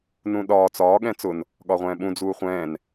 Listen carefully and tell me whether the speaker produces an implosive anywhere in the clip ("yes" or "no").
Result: yes